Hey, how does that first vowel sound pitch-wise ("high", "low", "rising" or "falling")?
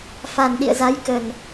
low